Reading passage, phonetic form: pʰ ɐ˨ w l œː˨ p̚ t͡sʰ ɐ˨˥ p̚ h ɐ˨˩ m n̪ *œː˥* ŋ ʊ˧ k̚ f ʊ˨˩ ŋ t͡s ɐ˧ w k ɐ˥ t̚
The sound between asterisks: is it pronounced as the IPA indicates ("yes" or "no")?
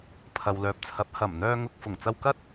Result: no